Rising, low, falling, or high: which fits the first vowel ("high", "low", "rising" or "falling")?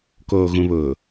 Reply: low